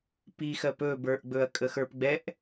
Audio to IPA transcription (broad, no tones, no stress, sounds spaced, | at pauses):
p i x ɜ p ɵ b ə˞ ʔ ɡ͡b ɵ ɐ̯ kʼ ə x ə˞ p ɡ͡b ɛ ʔ